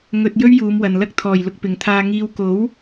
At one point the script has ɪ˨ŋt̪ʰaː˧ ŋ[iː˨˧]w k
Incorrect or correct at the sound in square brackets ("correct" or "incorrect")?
incorrect